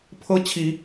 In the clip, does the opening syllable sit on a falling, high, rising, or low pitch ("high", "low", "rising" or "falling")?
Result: high